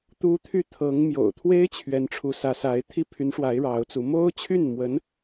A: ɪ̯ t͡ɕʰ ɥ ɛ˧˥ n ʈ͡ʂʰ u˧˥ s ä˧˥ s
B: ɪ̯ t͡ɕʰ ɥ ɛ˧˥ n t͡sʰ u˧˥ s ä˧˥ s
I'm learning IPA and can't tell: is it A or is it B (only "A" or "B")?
A